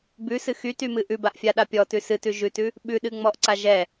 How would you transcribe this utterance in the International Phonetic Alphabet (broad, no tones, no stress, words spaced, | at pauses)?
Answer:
bʉsɨ xytymɨ ʔʉbaʔfʲaɗa pʲɔtʉ sɨtʉ ʒʉtʉ | ɓʉɗɨŋ͡mɔʔǀa ʒɛ